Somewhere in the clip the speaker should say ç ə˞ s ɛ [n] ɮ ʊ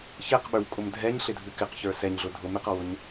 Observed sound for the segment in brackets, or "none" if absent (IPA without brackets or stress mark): ɲ